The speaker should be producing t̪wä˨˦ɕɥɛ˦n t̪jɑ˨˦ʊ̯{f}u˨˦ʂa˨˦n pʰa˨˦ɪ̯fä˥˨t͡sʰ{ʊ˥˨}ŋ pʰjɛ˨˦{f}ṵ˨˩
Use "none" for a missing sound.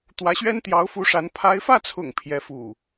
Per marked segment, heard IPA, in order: f, ʊ̰˨˩, f

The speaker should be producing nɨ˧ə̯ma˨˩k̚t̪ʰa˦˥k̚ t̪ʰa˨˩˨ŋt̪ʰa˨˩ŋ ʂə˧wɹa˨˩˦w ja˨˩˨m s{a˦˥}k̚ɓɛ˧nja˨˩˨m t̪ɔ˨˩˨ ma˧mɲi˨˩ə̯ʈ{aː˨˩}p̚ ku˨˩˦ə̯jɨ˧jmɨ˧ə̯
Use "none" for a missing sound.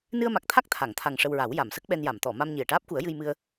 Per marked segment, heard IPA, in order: ə˦˥, aː˦˥

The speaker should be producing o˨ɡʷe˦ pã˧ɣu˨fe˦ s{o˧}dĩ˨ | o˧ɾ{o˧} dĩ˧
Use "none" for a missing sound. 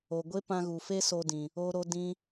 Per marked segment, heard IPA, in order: o˧, o˧

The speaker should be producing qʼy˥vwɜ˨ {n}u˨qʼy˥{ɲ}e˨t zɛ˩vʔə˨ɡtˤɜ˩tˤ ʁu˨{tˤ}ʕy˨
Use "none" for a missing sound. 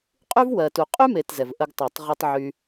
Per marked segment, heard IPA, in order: t, m, tˤ

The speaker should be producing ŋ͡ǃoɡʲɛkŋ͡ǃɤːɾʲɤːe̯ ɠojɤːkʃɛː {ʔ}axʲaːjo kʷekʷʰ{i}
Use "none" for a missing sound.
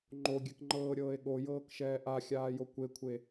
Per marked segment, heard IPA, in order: ʔ, e

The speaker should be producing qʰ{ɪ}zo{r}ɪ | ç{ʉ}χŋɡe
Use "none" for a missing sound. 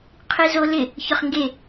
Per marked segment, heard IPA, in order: i, l, ʊ

